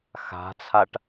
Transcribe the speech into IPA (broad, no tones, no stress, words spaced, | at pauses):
xa̤t͡sʰaʈ